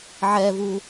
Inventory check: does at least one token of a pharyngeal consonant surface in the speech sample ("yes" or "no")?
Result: yes